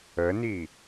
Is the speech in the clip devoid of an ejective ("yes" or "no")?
yes